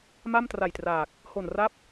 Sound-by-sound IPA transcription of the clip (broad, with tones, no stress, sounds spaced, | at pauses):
m a˥˩ m t r a˨˩ j t r aː˨˩ k̚ | h o˨˩ n r a˦˥ p̚